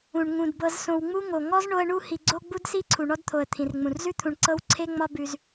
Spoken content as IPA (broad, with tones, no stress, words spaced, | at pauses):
ũ˩ɳ ŋũ˩dbɤ˨z sõ˨wŋ͡mu˥ŋo˩ ŋɔ˥z ɳo˦ə̯ɳu˥ hi˨ɡ͡ǀo˥ɡ͡bu˥dsi˥ ǀʰu˩ɳɔ˦dt̪ʰo˩ə̯ t̪ʰĩ˩rŋ͡mũ˩rzʉ˥t̪ʰũ˨ɳ ǀɤ˦w ǀʰe˥ŋ͡mɒ˦ bʉ˨z